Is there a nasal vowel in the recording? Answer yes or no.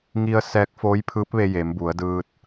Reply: no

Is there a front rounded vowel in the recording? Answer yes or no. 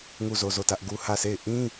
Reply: no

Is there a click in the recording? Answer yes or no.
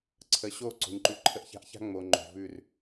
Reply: yes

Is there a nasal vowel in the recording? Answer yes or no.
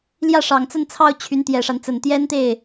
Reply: no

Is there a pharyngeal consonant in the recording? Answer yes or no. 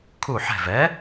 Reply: yes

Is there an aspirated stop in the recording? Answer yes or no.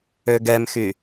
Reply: no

